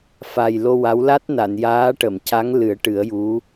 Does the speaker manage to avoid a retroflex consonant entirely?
no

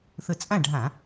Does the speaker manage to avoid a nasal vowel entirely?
no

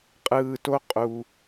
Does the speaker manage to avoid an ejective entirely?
no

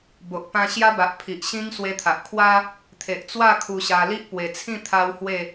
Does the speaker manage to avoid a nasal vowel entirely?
no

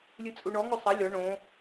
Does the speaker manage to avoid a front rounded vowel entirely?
yes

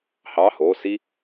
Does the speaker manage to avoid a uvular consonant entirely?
yes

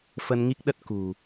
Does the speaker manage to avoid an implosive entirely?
no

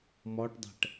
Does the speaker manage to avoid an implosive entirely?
yes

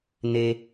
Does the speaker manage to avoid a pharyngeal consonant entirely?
yes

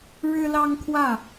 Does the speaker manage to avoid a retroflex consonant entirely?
no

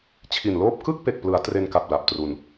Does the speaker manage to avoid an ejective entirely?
yes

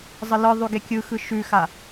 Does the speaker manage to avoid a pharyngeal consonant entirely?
yes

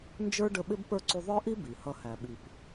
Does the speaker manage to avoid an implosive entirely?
no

